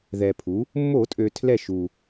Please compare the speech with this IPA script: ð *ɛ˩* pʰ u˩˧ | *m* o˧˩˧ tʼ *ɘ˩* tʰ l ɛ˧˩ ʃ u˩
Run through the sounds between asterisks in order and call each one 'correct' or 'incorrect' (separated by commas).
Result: correct, incorrect, incorrect